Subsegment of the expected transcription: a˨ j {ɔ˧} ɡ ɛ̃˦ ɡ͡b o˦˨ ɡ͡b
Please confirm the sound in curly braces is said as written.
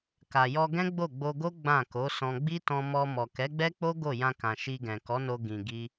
yes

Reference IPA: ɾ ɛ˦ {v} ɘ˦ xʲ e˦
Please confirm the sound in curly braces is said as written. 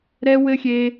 no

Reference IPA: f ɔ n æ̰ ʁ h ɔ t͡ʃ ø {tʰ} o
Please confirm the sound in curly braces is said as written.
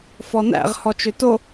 no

